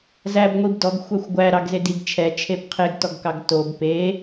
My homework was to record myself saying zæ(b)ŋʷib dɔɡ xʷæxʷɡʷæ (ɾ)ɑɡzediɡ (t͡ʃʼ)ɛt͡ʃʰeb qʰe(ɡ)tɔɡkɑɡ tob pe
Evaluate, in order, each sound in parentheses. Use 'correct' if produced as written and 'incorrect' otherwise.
correct, correct, incorrect: t͡ʃʰ, correct

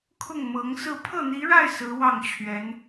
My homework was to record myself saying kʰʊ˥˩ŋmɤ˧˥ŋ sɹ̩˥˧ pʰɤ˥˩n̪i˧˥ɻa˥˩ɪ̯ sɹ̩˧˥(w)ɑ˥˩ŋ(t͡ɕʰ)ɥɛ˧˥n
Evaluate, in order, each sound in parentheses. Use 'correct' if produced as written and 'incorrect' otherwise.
correct, correct

